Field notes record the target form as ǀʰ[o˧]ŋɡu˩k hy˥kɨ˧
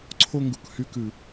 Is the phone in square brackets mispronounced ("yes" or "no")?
no